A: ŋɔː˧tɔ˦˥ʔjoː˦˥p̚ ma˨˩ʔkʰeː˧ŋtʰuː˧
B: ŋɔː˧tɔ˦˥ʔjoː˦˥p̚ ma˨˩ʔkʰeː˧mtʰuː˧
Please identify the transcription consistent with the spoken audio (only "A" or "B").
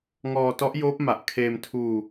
B